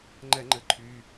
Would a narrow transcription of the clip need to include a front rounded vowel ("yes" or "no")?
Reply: yes